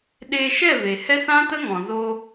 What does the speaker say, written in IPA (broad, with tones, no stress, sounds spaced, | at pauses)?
ɗ eː˧ ʃ ɛ˦˨ v e˨ h ɛ˦ s ã˦ t ə˦ ŋ ɔ̃˨ z o˧